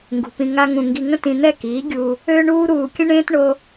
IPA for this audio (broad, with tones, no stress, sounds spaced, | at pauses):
ŋ ɡ ṳ˨ p ĩ˧ ŋ a˦ ŋ ũ˧ ŋ ɡ i˧ ŋ ə̃˦ t ĩ˧ n̪ ɛ˦˨ k iː˨˦ ɡʲ uː˧ | øː˦ ɳ uː˦ ɾ uː˧ kʲ ə̃˦ ɳ ẽː˦ t ɳ o˦